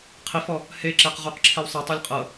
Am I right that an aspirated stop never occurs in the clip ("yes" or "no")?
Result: no